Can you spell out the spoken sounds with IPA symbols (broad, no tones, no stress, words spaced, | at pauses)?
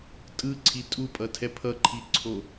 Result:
tʼɯǀʰi tʼupʼʌtʰɛ pʰʌǃʰiǀʰo